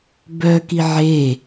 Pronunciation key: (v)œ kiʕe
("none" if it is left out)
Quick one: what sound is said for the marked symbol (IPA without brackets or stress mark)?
b